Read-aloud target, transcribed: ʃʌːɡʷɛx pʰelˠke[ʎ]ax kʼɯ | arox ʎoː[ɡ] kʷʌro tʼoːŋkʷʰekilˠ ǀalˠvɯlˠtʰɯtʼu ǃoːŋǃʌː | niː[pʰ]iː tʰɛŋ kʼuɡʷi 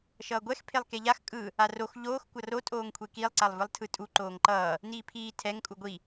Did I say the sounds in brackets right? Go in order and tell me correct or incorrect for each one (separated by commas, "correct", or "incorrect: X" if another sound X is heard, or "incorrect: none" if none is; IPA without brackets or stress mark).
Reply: correct, incorrect: x, correct